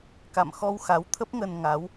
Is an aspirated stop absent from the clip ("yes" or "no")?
no